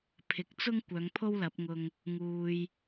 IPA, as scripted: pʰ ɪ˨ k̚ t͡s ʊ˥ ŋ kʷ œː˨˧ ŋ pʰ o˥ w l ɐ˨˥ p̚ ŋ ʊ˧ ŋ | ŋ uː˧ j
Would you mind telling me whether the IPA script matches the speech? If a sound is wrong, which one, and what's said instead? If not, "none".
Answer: none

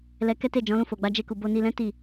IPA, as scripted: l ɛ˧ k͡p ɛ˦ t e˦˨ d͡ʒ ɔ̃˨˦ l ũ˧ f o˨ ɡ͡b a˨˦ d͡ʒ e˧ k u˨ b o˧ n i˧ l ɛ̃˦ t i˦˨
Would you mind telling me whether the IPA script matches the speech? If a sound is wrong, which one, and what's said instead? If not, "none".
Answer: k͡p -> k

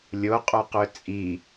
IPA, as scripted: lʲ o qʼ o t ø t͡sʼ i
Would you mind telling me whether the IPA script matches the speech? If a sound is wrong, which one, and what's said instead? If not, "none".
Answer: t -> q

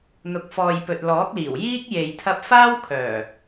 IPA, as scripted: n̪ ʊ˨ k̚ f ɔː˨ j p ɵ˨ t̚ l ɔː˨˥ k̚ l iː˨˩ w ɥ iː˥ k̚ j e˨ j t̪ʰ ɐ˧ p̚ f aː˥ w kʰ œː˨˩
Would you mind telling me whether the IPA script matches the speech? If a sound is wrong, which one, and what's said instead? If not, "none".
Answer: ɥ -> j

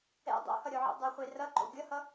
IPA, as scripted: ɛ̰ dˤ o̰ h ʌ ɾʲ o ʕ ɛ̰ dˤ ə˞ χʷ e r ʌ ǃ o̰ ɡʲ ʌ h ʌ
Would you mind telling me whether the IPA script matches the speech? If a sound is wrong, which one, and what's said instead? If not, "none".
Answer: none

